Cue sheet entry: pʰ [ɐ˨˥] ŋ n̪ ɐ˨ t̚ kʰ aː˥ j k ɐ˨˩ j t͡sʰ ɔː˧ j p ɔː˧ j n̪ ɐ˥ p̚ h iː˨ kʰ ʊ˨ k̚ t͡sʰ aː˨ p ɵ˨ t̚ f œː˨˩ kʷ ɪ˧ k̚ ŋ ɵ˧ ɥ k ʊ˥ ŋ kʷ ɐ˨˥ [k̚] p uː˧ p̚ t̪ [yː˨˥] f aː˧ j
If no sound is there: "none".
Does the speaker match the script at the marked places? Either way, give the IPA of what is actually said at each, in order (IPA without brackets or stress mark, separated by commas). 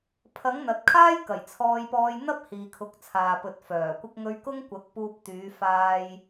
ɐ˨˥, k̚, yː˨˧